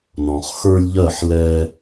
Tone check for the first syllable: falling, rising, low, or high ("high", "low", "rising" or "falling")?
low